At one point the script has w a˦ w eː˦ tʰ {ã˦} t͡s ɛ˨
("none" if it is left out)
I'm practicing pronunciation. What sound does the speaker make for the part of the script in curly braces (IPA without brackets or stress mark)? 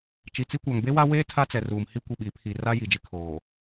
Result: a˦